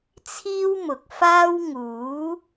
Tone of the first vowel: high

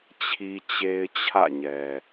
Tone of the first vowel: high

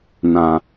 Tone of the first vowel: low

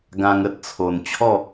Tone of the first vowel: high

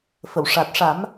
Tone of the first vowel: low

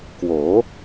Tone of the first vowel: rising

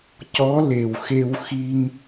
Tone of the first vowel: rising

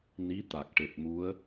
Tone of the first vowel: rising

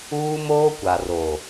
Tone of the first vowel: high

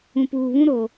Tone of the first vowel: low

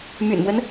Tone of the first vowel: low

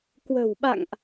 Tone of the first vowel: low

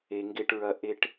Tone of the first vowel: low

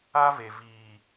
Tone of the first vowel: high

